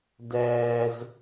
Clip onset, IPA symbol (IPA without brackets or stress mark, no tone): d